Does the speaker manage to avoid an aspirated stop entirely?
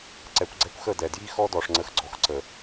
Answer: yes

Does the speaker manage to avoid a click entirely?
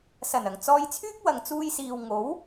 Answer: yes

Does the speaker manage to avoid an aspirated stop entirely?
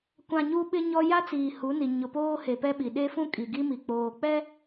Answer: yes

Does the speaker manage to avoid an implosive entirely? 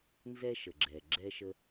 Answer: yes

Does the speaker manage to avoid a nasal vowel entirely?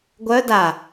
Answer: yes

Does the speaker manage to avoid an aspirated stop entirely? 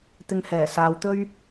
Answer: yes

